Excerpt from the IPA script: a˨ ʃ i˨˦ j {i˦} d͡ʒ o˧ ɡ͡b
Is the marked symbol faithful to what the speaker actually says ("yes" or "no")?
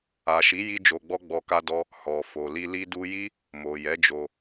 yes